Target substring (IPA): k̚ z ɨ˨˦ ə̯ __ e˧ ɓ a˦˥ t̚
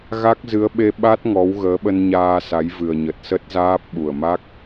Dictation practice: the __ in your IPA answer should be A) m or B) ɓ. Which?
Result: B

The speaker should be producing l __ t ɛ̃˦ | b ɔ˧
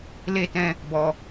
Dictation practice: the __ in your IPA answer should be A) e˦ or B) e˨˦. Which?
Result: A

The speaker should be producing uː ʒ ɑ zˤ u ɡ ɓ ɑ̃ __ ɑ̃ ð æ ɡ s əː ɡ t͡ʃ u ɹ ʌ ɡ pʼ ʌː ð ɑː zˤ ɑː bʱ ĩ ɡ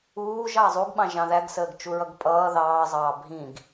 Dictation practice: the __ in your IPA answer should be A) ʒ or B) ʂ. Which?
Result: A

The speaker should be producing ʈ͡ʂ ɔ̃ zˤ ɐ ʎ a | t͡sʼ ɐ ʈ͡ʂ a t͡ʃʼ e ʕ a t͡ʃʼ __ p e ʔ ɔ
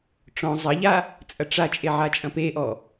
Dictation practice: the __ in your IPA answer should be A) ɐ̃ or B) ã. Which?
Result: A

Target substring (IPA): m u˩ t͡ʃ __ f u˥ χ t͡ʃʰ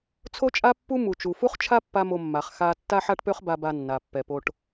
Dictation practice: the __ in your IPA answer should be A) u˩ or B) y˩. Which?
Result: A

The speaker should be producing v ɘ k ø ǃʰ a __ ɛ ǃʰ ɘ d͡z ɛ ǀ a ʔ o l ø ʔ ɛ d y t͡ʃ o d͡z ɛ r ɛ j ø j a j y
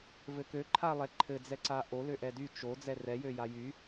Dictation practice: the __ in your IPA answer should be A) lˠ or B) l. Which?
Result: A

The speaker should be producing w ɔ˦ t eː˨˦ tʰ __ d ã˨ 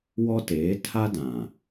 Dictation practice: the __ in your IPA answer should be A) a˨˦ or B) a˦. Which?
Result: B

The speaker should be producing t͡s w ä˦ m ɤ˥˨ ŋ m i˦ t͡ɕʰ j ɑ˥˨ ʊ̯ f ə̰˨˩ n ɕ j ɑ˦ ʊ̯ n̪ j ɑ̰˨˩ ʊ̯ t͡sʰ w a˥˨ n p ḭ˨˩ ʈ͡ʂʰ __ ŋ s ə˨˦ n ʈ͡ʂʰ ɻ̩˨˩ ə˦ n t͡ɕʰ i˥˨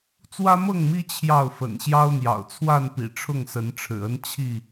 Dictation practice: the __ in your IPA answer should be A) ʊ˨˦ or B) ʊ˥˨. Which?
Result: B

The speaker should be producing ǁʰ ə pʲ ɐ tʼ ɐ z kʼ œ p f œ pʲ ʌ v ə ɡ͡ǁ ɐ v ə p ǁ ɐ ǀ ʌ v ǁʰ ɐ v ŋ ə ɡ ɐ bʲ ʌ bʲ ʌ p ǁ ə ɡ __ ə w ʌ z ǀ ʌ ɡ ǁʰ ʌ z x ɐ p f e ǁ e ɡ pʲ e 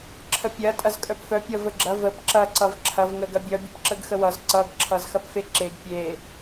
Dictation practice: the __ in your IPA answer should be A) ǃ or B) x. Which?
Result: B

